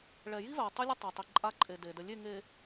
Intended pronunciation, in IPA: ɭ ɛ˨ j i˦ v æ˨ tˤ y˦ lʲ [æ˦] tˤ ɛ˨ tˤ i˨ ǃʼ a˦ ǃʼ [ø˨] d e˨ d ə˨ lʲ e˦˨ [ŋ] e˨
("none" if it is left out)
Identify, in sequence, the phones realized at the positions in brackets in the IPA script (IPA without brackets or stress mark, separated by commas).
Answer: ə˦, e˨, ŋ